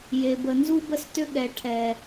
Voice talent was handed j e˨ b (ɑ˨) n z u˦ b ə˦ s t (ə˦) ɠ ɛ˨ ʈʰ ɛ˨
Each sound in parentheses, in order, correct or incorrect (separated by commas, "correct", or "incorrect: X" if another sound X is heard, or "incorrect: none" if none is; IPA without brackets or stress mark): incorrect: ə˨, incorrect: ʏ˦